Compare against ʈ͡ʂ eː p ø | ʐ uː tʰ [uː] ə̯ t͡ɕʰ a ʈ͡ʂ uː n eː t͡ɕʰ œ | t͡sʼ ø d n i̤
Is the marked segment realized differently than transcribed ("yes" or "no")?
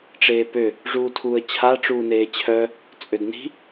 no